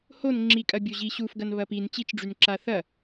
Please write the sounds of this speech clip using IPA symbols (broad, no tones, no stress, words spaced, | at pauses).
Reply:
hon ŋ͡ǁikʼɐbʲo ʑiɕufɡɐn βɐpin t͡ɕit͡ʃɖ͡ʐynǁa θɐ